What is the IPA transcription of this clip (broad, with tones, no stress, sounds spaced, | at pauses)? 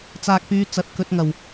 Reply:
t͡s aː˨ k̚ p yː˨˧ t͡s ɐ˨ t̚ k ɵ˧ t̚ ŋ ɐ˨˩ w